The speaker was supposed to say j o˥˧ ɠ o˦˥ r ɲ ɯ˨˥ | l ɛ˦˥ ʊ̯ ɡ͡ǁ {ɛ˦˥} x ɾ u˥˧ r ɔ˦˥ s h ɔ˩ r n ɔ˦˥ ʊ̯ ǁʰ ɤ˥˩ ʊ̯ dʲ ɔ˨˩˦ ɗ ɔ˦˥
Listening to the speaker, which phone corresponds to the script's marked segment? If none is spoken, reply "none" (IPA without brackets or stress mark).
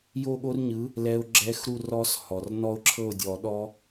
ɛ˦˥